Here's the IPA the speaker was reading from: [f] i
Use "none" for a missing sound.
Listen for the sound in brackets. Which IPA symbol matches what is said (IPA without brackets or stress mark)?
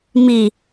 m